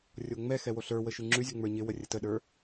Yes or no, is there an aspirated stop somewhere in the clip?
no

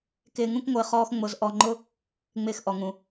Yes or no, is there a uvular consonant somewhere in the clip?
yes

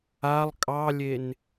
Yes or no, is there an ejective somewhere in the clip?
yes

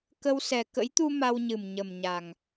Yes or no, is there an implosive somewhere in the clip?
no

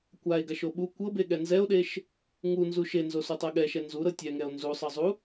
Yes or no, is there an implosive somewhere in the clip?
yes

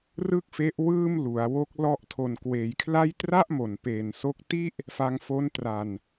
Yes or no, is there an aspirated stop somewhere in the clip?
yes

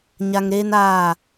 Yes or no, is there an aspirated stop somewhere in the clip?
no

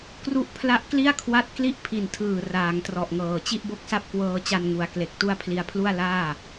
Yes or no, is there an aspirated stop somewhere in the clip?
yes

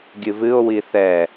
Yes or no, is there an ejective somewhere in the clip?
no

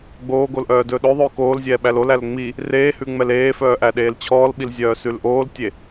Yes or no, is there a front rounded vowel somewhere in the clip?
yes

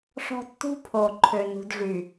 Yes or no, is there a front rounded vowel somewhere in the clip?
yes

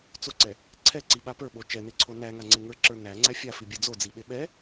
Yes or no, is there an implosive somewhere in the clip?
yes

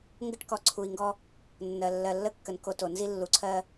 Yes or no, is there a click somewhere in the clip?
yes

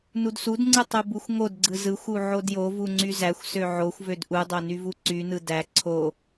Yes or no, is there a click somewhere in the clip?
yes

